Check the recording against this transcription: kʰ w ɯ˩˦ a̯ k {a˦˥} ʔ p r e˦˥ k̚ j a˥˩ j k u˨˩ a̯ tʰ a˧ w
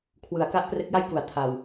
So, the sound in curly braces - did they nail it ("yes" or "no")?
yes